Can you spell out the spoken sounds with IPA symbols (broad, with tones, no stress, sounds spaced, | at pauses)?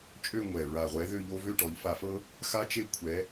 t͡ʃʼ ø˥˧ ŋʷ ɛ˨˩ ɹ a˨˩ ʁʷ ɛ˨˥ ð ø˥˧ ʎ o˥ v ø˥˧ ʈ ɔ˩˧ ʎ f a˧˩˧ f ɤ˥ | x a˥ t͡ʃ e˥˧ kʷʰ ɛ˨˥